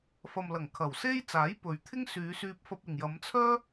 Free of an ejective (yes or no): yes